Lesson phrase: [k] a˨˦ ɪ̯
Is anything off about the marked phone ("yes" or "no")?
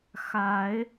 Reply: yes